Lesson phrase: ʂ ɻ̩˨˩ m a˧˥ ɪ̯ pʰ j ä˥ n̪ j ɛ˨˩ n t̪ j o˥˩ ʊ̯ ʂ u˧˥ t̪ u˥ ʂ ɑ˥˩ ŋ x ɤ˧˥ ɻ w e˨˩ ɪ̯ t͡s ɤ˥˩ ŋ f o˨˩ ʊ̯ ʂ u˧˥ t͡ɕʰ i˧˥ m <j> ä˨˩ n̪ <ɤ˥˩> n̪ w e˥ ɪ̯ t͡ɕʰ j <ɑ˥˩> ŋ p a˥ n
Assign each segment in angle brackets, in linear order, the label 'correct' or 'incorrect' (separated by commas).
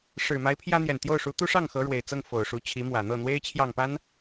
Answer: incorrect, correct, correct